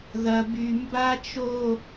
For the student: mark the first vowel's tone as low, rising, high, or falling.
high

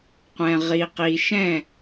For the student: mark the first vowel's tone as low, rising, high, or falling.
low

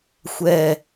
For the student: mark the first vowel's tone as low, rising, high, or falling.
low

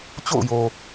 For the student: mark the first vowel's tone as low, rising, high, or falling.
falling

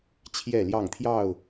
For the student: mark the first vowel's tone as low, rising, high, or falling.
falling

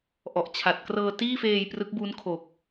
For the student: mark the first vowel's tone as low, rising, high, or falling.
low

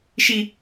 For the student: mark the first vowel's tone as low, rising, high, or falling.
high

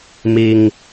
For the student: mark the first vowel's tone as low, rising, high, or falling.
low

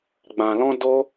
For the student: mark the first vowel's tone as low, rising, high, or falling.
low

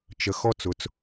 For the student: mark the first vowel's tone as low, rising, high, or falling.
low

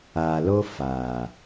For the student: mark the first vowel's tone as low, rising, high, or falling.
low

